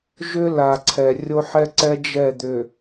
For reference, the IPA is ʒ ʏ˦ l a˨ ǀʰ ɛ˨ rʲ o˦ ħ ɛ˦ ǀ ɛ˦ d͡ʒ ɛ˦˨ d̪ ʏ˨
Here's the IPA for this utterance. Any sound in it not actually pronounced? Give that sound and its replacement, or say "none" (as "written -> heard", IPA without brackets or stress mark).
none